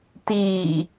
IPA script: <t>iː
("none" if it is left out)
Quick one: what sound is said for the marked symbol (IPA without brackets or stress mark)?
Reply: t